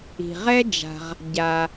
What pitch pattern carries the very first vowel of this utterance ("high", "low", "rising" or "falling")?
low